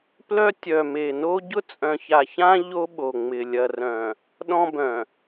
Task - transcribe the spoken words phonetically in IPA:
p l œ˦ tʲ œ˨ m e˨ n o˦ ɟ ʊ˦ t͡sʼ œ̃˨ ç a˨ ç ã˦ ʎ o˦ ɓ o˨ ŋ͡m ɪ˨ lʲ ɐ˨ r œ̃˨ | ɗ ɔ̃˦ b œ̃˨

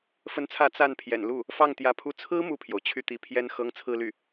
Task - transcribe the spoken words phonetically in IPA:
f ə˧˥ n t͡sʰ ä˧˥ t͡s a˥˩ n pʰ j ɛ̰˨˩ n l u˥˩ | f ɑ˥˩ ŋ t̪ j ä˧˥ pʰ u˥˩ t͡sʰ ɹ̩˥ m u˥˩ pʰ j o˩ ʊ̯ t͡ɕʰ y˥˩ t̪ i˧˥ pʰ j ɛ˥ n x ɤ˥ ŋ t͡sʰ ɹ̩˥˧ l y˥˩

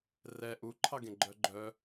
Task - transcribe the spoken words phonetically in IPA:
r ɛ ʔ u ǃʰ ɑ ɡ ẽ ɡ͡ǃ œ ɡ͡ǃ œ

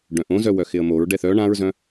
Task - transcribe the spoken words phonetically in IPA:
ɖ œ̃ ʔ õ z œ w œ x ɪ ə̯ m o ɹ ɖ ɛ θ œ ɳ ã ɹ z œ̃

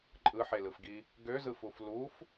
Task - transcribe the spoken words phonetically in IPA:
ǃʼ ɯ ħ e l ɯ f ɡ i | ɡ ø z ɯ f u f l u f

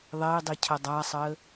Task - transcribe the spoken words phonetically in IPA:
ðˤ e i̯ dˤ i cʰ ə dˤ a sˤ ə

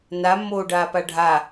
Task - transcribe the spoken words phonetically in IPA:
n a mː oː ɖ aː p a ɖʱ a

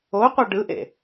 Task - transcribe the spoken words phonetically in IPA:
o qʷ ɛ ɖ ɯ ʔ ḛ

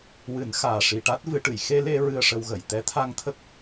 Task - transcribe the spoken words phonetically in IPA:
w ɨ˨˩˦ n x aː˨˩ ʂ i˨˩ ʈ a˦˥ t̚ v ɨ˨˩˦ ʈ ɨ˨˩˨ j x e˧ l e˧ ɹ ɨ˧ ə̯ ʂ ə˧ w ɣ ə˨˩˨ j t̪ ɛ˧˥ t̪ʰ a˧ ŋ t̪ʰ ə˦˥ k̚

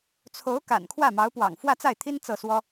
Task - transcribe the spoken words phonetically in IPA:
t͡sʰ o˧˥ ʊ̯ k a̰˨˩ n kʰ w ä˥˩ m ɑ˧˥ ʊ̯ p w ɑ̰˨˩ ŋ f w ä˥˧ t͡s a˥˩ ɪ̯ t̪ʰ i˥ n t͡s ɤ˥˩ s w ɔ˥

